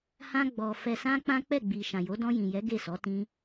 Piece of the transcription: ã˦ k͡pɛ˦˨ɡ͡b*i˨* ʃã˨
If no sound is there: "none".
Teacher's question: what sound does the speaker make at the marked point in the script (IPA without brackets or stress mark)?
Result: i˨